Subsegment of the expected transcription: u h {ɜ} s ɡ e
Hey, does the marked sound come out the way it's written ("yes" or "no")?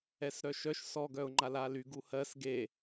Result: yes